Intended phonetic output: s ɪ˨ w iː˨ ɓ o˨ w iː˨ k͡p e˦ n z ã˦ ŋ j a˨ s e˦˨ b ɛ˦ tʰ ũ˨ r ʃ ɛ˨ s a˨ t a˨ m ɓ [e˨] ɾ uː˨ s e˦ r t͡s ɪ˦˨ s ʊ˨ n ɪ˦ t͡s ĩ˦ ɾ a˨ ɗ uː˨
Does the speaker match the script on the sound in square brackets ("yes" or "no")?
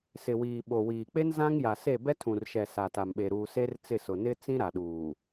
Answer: yes